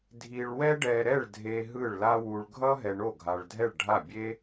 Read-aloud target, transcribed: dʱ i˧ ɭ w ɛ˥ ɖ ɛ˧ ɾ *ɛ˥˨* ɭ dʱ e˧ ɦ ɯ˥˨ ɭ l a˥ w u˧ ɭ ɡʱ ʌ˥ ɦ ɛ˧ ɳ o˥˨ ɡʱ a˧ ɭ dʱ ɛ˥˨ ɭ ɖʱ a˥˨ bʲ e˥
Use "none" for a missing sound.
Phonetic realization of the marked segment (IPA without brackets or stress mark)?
ɛ˥˨